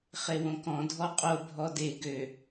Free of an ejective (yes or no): no